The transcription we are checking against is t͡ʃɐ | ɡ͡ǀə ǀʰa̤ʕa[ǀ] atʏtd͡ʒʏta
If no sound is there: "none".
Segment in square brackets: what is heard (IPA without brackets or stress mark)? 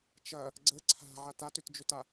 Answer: t